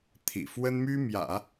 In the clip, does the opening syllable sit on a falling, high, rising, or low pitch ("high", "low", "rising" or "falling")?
low